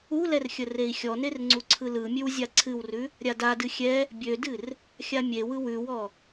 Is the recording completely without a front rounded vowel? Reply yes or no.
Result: no